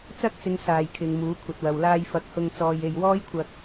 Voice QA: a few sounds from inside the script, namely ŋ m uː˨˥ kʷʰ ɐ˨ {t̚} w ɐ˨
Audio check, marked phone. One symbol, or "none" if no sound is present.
t̚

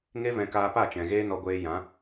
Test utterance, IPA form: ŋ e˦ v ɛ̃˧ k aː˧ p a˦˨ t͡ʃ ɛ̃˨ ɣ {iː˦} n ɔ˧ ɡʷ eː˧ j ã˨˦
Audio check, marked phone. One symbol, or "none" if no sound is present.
eː˦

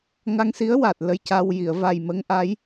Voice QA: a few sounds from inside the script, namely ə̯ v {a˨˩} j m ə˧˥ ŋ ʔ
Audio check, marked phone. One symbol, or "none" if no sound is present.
a˨˩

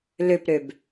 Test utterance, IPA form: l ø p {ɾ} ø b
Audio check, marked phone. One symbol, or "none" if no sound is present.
ɾ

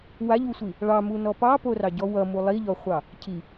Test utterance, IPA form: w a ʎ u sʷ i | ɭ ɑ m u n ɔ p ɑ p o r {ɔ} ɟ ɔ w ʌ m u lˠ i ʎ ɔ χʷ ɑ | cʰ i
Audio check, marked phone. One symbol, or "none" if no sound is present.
ɑ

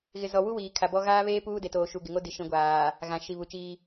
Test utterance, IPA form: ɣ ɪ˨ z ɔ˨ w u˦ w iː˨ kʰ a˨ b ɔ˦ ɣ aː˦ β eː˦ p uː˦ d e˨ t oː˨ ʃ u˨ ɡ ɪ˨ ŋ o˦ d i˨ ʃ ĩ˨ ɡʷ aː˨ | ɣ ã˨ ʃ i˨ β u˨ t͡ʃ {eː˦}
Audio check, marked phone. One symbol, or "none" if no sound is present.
iː˦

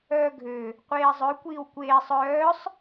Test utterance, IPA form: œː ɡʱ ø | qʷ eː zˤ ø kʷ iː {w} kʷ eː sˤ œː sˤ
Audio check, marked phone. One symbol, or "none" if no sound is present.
w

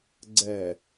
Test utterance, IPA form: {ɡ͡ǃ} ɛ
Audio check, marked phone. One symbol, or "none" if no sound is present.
ɡ͡ǀ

